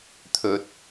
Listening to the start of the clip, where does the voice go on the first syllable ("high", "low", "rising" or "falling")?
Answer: low